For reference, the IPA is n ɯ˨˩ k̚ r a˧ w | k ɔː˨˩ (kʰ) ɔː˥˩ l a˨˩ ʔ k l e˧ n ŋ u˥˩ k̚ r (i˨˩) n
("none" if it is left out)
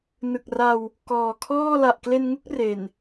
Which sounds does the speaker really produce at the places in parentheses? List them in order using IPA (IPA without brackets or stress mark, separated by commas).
kʰ, e˨˩